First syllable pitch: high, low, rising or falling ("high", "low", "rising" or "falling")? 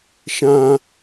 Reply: high